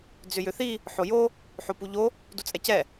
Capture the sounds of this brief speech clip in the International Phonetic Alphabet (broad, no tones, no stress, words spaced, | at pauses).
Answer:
d͡zʏjʏθi | ħojo | ħopuʎo | dut͡sʼɛcɛ